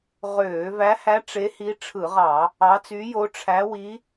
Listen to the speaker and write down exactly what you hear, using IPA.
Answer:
ʁøː˧˩˧væ˧˥hæ˧˥ ʈ͡ʂe˧˥hi˧˥ ʈ͡ʂʰɯ˧˩˧ʁɑ˧˩˧ | ɑ˧˥ t͡sy˧˥jo˧˥ ʈ͡ʂʰæ˧˥wi˧˥

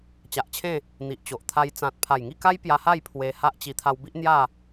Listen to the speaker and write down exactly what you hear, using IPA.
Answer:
t͡ɕa˨ʔt͡ɕʰẽ˥˧ | n̪i˨ʔt͡ɕo˨ʔ t̪ʰa˧jt͡sã˨t̚ pʰa˨˩jŋi˥˧ka˦j pja˧ha˥˧j pʰwe˧ ha˦ʔt͡ɕi˧ t̪ʰa˧wbi˦ʔ n̪ja˥˧

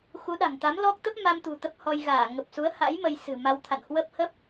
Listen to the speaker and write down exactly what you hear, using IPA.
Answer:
xu˨˦ɗa̤˨˩ŋt̪a˨˦mlɔ˦˥k̚ t̪ə˦˥p̚ma˧mt̪ṳ˨˩ t̪ə˦˥p̚hɔ˧jɣaː˧˩ ŋə˨˩p̚su˨˦ə̯ha̰˧˥j mə˧jsɨ̤˨˩ma˧wt̪ʰa̰˧˨n hwə˦˥p̚hə˦˥p̚

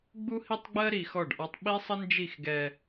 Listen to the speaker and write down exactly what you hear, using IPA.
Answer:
ɡ͡bu˦hi˦tˤɡ͡bɜ˦ ɾi˨xɔ˦˨ɖʔɒ˦tˤ ɓi˦sˤə˦nd͡ʒi˦˨x ɡɛ˦

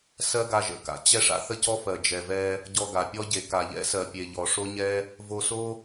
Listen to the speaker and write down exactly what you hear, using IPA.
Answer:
sɜ˦ɡa˧ʒə̰˧ka̰˨ t͡ɕɛ˦ʂa̰˦ θə˦cɔ˦fɜ˨ d͡ʒɛ˨vɛ˧ | ɟɔ˧ɡa˨pʲɔ˦ ɟe˨ ka˨ʎɛ̰˦sɜ˨pʲe˨ ʎɔ˨ʂo˦ɲɛ˦ | vo˧so˦

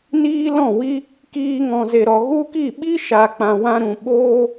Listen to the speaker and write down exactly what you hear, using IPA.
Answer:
niː˦lɔ̃˦˨ wi˧ | kiː˧ŋɔ̃˨ze˨ɾɔ˨ ɣu˦ki˦˨ ɓi˦ʃa˨ k͡pã˨wã˧ɾũ˨ ɓoː˦

